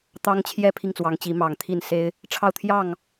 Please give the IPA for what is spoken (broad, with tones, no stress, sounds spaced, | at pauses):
t̪ ɑ˦ ŋ t͡ɕʰ j ɛ˥˨ pʰ i˥˨ ŋ t͡s w ɑ˨˦ ŋ t͡ɕ i˨˦ m ɑ˨˩ ŋ t̪ʰ i˥˨ n s e˦ ɪ̯ | ʈ͡ʂʰ ɑ˥˨ ʊ̯ t̪ʰ j ɑ˥˨ ŋ